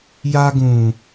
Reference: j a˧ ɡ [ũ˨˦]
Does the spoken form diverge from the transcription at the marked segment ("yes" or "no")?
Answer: yes